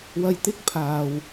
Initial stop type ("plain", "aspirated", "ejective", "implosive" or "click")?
plain